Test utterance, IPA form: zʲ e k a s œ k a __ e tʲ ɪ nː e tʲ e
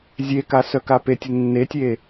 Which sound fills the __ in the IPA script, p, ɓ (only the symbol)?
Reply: p